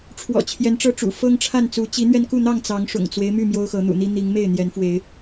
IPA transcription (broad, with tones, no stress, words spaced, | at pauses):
ʈ͡ʂʰwɔ̰˨˩t͡ɕʰjɛ˨˦nʈ͡ʂɤ˥˨ʈ͡ʂṵ˨˩ fɤ˦ŋʈ͡ʂʰa˥˨nt͡su˨˦ t͡ɕi˨˦n̪ɥɛ˧nku˥˨n̪ɑ˥˨ŋ t͡sɑ˨˦ŋʂʊ̰˨˩ŋt͡swe˦ɪ̯my˥˨ mjo˦ʊ̯xɤ˨˦n̪ṵ˨˩n̪i˦ n̪i˨˦ŋ me˥˨ɪ̯n̪jɛ˨˦nfwe˨˦ɪ̯